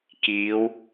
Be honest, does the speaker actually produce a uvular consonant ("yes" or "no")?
no